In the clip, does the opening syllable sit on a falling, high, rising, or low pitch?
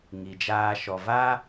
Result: low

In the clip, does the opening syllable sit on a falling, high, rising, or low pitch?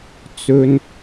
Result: low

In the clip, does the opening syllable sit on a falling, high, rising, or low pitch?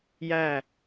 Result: falling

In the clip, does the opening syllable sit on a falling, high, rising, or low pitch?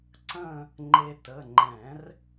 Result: falling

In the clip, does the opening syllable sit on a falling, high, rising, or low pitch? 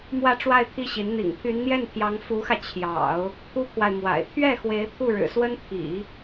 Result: falling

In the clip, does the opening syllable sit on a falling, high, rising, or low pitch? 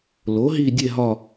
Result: rising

